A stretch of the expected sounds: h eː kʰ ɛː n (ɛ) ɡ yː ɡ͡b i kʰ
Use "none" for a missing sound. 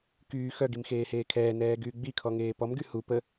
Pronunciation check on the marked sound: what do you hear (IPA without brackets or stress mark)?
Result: ɛː